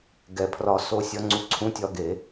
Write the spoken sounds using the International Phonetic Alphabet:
ɡ ɛ˧˩˧ pʰ r ɒː˧ s oː˧ sʲ ɒ˨˥ ŋ͡ǀ u˧ ǀʰ ũ˨˥ tʲ ɒ˧ ɡ e˧˩˧

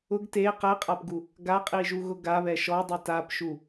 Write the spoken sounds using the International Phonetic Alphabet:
ʊ ɡ t e q ɛ qʼ a p ɡ u | ɡ a qʼ i ʒ u ɣ ʊ ɡ a β ɛ ʃ ɔ dˤ i t a p ʃ u

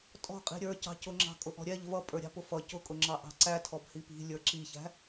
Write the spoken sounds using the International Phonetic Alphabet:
tʼ ɔ̤ qʼ i̤ ɾʲ ə˞ c ɑ̤ c ʊ ŋ͡ǁ ɑ̤ kʼ ʊ ʔ ɔ̤ ɾʲ ɛ ʎ v ʌ pʼ ə˞ ɾʲ ɑ̤ p ʊ f ʌ c ʊ kʼ ʊ ŋ͡ǁ ɑ ʔ ɑ̤ ǀ æ tʰ ɔ b h i p i̤ lʲ ə˞ ǁ i ç æ̤

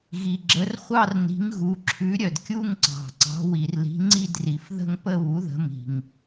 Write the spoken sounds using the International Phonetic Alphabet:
ɣ i˩ ɡ͡ǁ ə˩˥ r χʷ ɑ˥˧ r n i̤˩˥ ŋ ɣ u˩˧ ǁʰ ʉ˩˥ ɾʲ œ˩ d kʲ u˥˧ ŋ ǀ ɑ̤˩ ǀ ɑ̤˩˥ w i˩ r l i̤˩˥ ŋ͡ǀ i˥˧ d r i˩ f ð ə̤˥˧ ŋ p ə˥˧ β u˩˥ ð ə̤˩˥ m i̤˩ ŋ

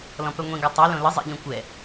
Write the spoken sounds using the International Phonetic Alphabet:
l ɔ̃ p œ ŋʷ ĩ ɡ a tˤ y l õ l ə zˤ ḛ ʎ ɔ̃ kʷ ɛ

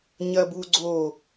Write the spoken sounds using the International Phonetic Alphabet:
ɲ ɐ b u ɡ͡ǀ o

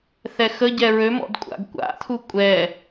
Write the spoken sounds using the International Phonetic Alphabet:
θ ɛ x ə ɟ ɛ ɹ ø m ɔ̰ d kʷʼ a̰ ɡ kʷ a̰ t̪ʰ u kʷʼ ɛ

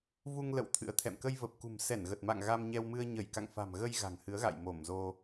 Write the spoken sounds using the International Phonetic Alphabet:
v u˧ ŋ l ə̰˧˨ w t̪ʰ ɨ̰˧˥ ə̯ t̪ʰ ɛ̰˧˨ m k ə˧ j v ə˨˩ p̚ k ṳ˨˩ m s ɛ˧˩ n ɣ ə˨˩ t̚ m a̰˧˨ ŋ ɣ a˧ m ɲ ɛ˧ w m ɨ˧ ə̯ ɲ ə˧˩ j k a̰˧˨ ŋ f a̤˨˩ m ɣ ə˧ j ɣ a̤˨˩ ŋ h ɨ˨˦ ə̯ ɣ a̰˧˨ j m o˧˩ m z o˧

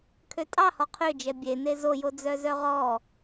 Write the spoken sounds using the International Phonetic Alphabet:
kʰ ø tʼ ɑ h ɔ qʰ ø d͡ʒ ɛ bʲ e n e z o j o d͡z œ z œ ʁ ɔ

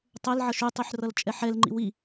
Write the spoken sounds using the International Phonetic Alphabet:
tˤ ɛ l ʕ ʌ ʃ y tˤ y ħ r ʌ l t͡ʃʼ ɛ ħ ɛ l ŋ͡ǃ ḭ w i

